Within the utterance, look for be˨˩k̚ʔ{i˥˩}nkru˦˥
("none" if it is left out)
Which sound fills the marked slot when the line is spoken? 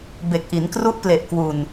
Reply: i˩˦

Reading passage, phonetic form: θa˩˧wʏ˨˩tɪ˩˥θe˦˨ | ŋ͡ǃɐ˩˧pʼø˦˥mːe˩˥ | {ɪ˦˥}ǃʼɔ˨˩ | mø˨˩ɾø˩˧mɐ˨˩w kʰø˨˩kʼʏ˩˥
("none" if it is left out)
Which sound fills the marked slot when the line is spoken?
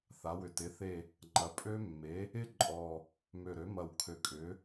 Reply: ɪ˦˥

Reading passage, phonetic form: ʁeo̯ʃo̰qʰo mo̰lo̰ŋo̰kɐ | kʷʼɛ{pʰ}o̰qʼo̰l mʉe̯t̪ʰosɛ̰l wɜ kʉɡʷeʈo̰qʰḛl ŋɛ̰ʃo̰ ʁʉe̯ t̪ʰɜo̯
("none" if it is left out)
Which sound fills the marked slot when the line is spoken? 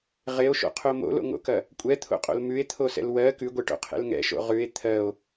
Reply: t̪ʰ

